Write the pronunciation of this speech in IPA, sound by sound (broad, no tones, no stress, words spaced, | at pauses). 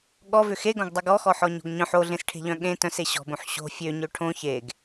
ɠɔvʏ xeɡõɡdˤʏ ɡɔxɔħɔɲo̤ɡ ɲœ̃ħ oɮẽsʈʰe̤ʎœ̃ ɠẽ tœ̃se ɕɔ̤bõħ ɕo̤ fʲøɲø ʈʰõ çeɡ